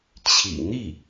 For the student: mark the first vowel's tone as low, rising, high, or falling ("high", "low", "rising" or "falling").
low